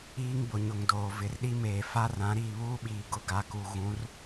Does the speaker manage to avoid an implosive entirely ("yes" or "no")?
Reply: no